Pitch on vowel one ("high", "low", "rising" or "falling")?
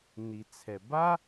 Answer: low